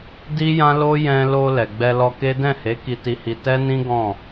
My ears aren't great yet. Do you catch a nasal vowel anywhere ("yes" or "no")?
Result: yes